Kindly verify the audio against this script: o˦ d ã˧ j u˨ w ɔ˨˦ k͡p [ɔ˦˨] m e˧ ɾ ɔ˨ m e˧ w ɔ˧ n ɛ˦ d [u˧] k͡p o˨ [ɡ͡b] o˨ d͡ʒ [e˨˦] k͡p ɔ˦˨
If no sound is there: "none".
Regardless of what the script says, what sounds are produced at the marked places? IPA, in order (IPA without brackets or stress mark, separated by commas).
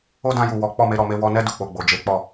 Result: ɔ˦˨, u˦˨, ɡ͡b, e˨˦